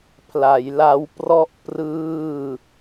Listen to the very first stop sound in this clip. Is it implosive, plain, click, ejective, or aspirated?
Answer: aspirated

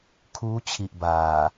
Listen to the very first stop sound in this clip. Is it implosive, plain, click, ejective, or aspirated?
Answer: aspirated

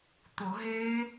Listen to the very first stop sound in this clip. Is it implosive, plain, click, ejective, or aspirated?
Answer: plain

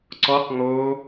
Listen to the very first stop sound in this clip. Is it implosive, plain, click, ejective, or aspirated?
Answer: click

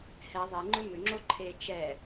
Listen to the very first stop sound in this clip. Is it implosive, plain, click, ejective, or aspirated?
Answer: click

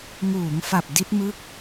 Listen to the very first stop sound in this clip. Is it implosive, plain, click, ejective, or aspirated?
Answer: plain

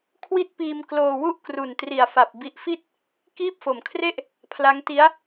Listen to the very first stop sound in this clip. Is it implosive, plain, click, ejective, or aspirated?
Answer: aspirated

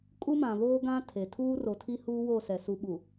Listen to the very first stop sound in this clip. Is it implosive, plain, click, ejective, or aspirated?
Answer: ejective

